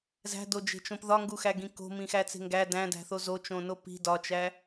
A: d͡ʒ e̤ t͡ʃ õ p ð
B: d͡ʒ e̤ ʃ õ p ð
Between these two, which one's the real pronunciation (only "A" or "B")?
A